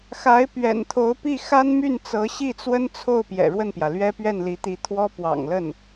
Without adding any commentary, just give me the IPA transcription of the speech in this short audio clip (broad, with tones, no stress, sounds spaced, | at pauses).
x a˧˥ ɪ̯ p ɥ ɛ̰˨˩ n t̪ʰ o˧˥ ʊ̯ p i˥˩ x a˥ n m y˥˩ n t͡s ɤ˧˥ ɕ i˥˩ t͡s w ə˥ n t͡sʰ o˥˩ ʊ̯ p j ɛ̰˨˩ ɻ w ə˥˩ n p j ä˩ l ɥ ɛ˥ p ɥ ɛ˥˩ n l i˧˥ t̪ i˧˥ t̪ʰ w ɔ˥ p w ɑ̰˨˩ ŋ l ə˥˩ n